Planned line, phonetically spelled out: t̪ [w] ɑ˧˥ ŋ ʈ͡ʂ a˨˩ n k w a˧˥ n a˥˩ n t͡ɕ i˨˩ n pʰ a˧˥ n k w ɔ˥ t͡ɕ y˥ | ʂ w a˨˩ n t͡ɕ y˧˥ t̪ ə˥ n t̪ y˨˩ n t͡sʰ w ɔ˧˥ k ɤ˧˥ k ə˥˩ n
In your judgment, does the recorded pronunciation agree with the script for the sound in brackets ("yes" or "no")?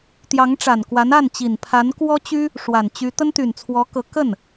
no